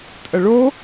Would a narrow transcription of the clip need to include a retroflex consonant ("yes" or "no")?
yes